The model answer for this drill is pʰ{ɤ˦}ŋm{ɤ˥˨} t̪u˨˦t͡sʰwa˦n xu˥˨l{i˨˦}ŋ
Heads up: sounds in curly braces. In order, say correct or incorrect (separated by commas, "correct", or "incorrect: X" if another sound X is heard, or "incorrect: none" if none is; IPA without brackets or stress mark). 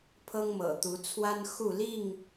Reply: correct, incorrect: ɤ̰˨˩, incorrect: i˥˨